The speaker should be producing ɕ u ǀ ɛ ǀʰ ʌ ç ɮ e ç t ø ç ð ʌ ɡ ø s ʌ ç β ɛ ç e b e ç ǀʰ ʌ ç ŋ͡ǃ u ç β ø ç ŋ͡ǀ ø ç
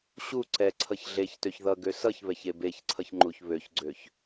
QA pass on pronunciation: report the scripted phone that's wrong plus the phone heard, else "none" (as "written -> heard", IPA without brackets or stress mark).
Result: ŋ͡ǀ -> ɡ͡ǀ